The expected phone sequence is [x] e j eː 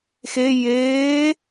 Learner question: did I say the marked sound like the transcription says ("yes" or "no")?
yes